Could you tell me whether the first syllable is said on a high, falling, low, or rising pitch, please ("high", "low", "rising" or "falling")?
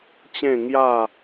falling